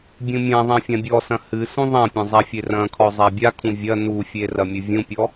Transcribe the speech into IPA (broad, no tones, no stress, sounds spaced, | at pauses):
bʲ ũ mʲ ã ðˤ ɐ̃ fʲ ã bʲ ɔ s ɐ̃ h ɨ s ũ ðˤ ɐ̃ pʲ ɐ̃ zˤ a fʲ e r ɐ̃ kʰ ɔ zˤ a bʲ a kʰ ũ vʲ ɐ n u fʲ e r ɐ mʲ ɨ vʲ ũ pʲ ɔ